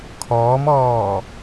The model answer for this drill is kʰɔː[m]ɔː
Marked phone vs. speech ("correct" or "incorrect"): correct